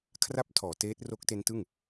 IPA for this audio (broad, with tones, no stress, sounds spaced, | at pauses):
kʰ r a˥˩ p̚ tʰ ɔː˩˦ t eː˦˥ t̚ r o˦˥ k̚ t e˦˥ n t ɯ˥˩ ŋ